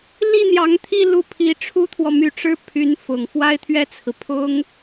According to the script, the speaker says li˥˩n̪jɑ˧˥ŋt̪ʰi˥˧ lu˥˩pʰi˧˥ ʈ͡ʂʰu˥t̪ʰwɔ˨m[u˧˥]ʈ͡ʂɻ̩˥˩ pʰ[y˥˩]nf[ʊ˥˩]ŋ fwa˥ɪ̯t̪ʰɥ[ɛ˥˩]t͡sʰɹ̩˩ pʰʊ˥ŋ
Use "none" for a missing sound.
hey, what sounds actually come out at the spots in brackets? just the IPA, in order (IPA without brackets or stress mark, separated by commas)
y˧˥, y˧˥, ʊ˨˩, ɛ˥˩